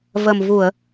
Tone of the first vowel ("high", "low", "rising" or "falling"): low